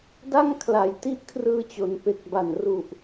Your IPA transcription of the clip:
d a˥˩ ŋ kʰ l a˩˦ j t i˦˥ ʔ kʰ r ɯː˧ t͡ɕ o˩˦ n p e˨˩ k̚ b a˨˩ n r u˨˩ ʔ

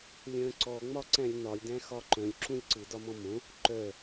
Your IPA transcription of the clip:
lʲ œ̃ ǀ ɔ ŋ͡m ɒ ǀ æ̃ lʲ n ɒ lʲ d æ̃ x ɒ ǃ œ̃ lʲ ǁ ũ lʲ ǀ ɯ d ɒ m ɔ̃ m õ | ǃ œ

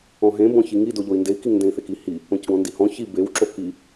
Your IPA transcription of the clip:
ɔ̃ ɦ ẽ b ɔ̃ ç i ŋ i d o ʎ o i̯ n d e i̯ k i ŋ n d ẽ i̯ θ e k i h i | õ c ɡ ɔ̃ n d i h ɔ̃ ç i b e w ǁ o k i

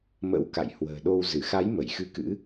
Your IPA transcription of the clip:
m ə̰˧˥ w k a̰˧˨ j h w ə̤ː˨˩ ɗ o˧ w z ɨ˧˩ x a˨˦ j m ə˧˩ j x ɨ˧ k ɨ̰˧˥

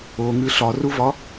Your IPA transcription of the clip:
o ŋ ɨ ɬ ɒ r u v ɒ

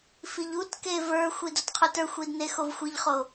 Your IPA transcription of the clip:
f i ʎ u t k e v ə˞ xʷ i d o t qʰ u t ə˞ xʷ i d n e x o v xʷ i ʎ χ o

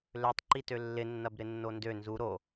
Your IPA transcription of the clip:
l ø tˤ ǃ i t ø lː ɪ nː ɐ b ɾ ɪ nː o n d ø n z u ɾ o

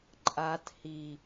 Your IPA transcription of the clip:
ǃʼ a t h i

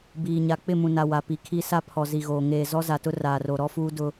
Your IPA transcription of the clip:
b iː˨ ɲ a˨ k͡p ɪ˦˨ m ũ˨ n a˨ w a˨ p i˨ kʰ i˦ s a˦ pʰ ɔ˨ z i˨ ɣ oː˨ ŋ eː˨ z ɔ˦ z a˨ t ʊ˦ r aː˨ r o˨ ɾ ɔ˦ f uː˦ d ʊ˦

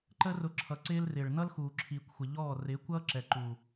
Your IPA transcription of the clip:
ǃ ə˦ r ʊ˧ ǁʰ ʌ˧ ǀ ɪː˧ l r ɪː˨ ɭ n ʌ˦ l x uː˨ ǁʰ iː˨ kʷ xʷ ɪ˨ ʎ ɔː˦˨ r ɪː˨˦ kʷ ʌː˦ ǁ ɛ˨ ǃ u˨

